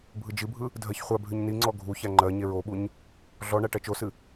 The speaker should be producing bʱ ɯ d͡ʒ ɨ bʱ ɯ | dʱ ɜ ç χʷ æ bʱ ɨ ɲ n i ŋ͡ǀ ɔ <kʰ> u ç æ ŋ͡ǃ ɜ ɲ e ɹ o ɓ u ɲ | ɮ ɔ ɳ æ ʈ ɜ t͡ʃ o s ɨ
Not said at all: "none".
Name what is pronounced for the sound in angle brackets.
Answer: ɡʱ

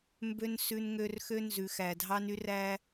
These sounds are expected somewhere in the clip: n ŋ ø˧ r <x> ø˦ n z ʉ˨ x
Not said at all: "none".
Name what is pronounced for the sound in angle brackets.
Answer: x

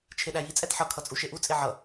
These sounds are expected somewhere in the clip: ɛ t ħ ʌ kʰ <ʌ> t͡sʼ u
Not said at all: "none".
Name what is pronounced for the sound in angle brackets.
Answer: ʌ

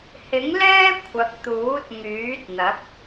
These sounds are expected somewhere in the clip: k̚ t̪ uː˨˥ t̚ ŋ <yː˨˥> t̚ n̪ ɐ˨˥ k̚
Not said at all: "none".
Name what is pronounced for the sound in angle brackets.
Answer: yː˨˥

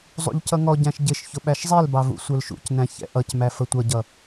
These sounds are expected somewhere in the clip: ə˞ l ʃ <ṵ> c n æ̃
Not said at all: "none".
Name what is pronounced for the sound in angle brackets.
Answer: ṵ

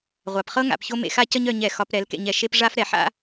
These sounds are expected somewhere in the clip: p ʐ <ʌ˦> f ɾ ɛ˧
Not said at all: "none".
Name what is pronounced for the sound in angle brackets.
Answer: a˦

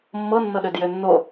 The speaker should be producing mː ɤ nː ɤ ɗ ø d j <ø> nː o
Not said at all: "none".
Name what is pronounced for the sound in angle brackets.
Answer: ø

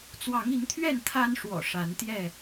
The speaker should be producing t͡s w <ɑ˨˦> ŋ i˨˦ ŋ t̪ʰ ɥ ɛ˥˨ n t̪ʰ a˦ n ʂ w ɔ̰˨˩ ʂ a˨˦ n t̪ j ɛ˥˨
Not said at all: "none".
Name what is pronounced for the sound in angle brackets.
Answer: ɑ˨˦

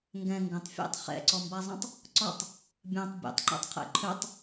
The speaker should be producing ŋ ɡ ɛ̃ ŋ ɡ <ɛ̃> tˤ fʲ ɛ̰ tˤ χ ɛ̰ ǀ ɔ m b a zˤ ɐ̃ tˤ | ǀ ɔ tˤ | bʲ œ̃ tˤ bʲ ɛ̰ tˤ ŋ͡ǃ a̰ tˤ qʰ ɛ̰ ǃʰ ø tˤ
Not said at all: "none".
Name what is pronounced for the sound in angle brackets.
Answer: ə̃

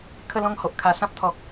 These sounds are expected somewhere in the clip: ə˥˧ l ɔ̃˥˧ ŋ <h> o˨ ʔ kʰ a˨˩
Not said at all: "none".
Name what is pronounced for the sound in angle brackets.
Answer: h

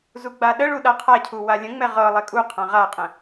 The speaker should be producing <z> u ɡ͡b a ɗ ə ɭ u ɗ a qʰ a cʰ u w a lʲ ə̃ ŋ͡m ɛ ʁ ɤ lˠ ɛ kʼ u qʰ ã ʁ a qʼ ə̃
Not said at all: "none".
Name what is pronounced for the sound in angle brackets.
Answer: z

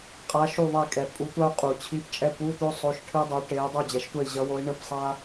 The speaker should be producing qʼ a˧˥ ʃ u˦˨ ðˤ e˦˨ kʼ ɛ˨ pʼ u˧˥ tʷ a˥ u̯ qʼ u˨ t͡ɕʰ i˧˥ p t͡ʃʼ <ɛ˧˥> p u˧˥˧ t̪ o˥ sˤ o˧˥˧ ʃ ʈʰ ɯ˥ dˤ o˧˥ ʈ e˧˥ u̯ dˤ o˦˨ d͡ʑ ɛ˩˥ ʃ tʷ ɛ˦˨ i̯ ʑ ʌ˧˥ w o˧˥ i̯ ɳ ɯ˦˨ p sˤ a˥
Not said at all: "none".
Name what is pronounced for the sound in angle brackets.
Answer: ɛ˧˥˧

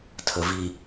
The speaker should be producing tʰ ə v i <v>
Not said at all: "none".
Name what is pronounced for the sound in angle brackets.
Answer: none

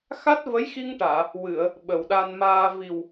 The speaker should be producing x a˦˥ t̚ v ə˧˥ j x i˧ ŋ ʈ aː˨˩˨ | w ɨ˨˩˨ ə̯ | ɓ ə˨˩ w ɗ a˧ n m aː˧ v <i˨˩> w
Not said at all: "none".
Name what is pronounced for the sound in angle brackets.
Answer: i˨˩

